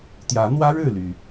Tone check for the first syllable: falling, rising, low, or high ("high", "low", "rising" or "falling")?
rising